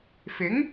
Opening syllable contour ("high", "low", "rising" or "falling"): rising